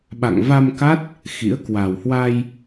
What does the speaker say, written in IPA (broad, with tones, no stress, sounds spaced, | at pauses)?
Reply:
ɓ a̰˧˨ ŋ v a˧ m k a˦˥ t̚ | x ḭ˧˥ ə̯ k w a˨˩ w h w a˧ j